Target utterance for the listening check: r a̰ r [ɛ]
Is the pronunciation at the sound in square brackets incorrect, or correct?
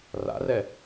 correct